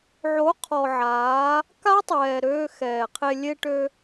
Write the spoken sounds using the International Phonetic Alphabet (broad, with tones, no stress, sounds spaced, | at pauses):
ʕ o˨˦ qʰ ɔ˨ ʕ aː˨˦ | k a˦ tˤ ɛː˨ ɾ øː˧ x ɛː˨ qʰ e˧ lʲ e˧ ʈ ø˧